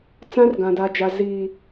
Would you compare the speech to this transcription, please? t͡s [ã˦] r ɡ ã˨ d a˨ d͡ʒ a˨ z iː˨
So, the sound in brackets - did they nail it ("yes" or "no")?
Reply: yes